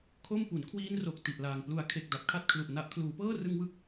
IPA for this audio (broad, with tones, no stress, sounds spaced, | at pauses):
kʰ o˥˩ m p u˩˦ n kʰ w iː˦˥ n r o˨˩ k̚ t i˨˩ ʔ l aː˨˩ ŋ p l u˩˦ a̯ kʰ e˨˩ k̚ d a˨˩ p̚ kʰ a˥˩ t̚ kʰ l u˨˩ ʔ n a˨˩ ʔ kʰ l uː˩˦ p ɤː˥˩ r ɯ˦˥ ŋ w ɯ˥˩ k̚